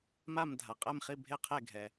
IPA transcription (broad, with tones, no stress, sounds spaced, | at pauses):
m a˥˩ m dʱ a˩ qʼ ɛ˥˩ m χ i˥˩ bʱ e˥˩ qʰ e˥˩ ɡʱ ɛ˩